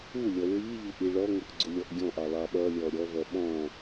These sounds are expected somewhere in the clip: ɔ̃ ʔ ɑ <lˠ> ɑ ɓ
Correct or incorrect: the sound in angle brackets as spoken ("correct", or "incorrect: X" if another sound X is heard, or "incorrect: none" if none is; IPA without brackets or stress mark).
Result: correct